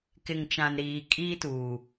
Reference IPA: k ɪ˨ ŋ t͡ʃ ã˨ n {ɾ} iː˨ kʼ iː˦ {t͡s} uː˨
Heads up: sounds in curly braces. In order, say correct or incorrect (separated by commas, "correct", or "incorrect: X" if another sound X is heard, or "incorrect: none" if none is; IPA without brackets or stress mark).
correct, incorrect: t